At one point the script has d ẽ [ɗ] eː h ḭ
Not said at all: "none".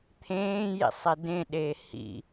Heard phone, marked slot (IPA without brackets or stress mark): ɗ